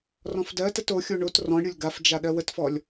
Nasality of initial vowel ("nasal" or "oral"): nasal